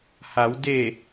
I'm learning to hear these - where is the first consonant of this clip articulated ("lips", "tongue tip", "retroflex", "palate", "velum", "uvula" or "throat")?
throat